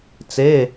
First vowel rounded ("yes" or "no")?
no